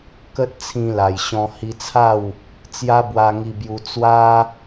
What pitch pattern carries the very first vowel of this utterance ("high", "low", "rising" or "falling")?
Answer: high